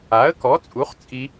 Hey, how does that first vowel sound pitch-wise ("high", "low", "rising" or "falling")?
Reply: rising